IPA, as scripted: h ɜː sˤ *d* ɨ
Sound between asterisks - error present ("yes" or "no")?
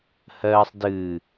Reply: no